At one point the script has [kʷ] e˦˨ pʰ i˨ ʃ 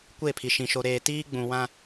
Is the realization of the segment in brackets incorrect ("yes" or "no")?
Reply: no